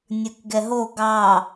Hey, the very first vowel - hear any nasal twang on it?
no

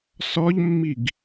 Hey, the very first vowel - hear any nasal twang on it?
no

